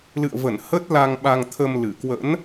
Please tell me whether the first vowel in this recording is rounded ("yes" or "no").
no